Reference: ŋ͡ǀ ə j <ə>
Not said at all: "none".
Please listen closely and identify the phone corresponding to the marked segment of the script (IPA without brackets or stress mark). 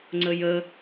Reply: ə